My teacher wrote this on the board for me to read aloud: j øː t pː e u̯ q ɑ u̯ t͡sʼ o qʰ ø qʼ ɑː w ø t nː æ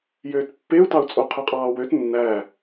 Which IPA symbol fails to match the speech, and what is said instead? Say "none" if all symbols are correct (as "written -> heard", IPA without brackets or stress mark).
q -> t